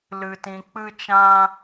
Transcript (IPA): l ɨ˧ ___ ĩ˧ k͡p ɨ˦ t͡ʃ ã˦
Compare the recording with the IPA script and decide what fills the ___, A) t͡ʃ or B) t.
B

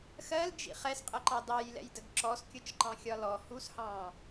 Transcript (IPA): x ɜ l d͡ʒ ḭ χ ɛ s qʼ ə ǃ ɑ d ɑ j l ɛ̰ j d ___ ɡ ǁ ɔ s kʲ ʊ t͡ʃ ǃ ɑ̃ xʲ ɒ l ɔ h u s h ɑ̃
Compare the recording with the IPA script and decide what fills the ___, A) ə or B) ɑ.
A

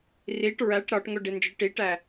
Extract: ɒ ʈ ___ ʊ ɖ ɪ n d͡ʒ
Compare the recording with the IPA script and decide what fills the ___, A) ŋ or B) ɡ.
A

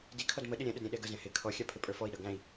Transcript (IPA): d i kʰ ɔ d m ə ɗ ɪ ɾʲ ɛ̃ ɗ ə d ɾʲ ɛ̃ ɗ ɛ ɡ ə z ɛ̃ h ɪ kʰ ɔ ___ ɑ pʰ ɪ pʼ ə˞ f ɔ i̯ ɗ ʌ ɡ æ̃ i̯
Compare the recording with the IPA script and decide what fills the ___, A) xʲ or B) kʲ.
A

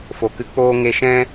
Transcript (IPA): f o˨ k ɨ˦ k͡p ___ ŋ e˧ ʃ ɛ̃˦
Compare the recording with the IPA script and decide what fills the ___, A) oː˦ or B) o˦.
A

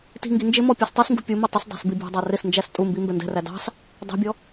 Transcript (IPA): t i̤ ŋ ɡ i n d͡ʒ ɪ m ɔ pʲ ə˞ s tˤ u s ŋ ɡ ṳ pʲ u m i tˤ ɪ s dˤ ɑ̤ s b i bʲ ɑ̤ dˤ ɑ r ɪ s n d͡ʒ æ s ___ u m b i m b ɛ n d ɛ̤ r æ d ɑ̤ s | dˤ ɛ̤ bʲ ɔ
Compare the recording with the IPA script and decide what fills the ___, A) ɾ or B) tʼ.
B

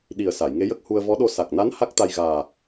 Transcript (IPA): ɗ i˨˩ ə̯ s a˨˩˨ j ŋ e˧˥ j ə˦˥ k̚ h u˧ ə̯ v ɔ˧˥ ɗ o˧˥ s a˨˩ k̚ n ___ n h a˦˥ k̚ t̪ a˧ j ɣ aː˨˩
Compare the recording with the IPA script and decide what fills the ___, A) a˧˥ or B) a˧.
A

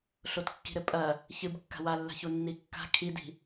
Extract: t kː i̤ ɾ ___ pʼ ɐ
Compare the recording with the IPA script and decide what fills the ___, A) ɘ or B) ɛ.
A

